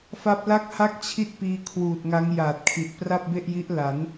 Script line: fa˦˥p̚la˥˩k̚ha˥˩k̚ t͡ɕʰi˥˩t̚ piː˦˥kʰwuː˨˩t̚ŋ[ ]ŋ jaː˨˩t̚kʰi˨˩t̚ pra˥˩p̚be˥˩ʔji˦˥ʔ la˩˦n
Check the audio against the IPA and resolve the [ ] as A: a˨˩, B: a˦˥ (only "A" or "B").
B